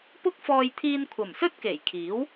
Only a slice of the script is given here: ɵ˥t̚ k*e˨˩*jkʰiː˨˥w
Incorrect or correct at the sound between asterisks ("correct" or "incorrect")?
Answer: correct